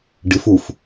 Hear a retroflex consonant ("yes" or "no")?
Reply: yes